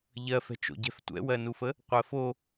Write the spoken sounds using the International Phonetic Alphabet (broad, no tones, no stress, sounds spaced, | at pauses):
ʎ ɜ f ɛ̤ t͡ʃ o̰ ɟ ɛ̤ f tʷ ɛ̰ w ɜ n u f ə | qʷ ɜ f o